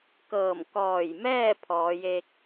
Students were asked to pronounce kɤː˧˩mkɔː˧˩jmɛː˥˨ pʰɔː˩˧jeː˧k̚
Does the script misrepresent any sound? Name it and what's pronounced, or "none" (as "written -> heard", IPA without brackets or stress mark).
none